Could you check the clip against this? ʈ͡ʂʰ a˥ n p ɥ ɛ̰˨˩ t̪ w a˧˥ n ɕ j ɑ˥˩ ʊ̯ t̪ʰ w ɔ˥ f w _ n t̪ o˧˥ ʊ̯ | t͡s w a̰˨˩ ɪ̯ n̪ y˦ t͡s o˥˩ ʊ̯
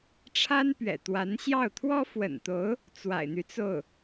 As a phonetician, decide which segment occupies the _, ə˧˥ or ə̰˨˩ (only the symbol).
ə̰˨˩